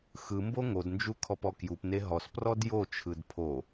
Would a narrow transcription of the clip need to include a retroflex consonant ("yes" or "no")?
no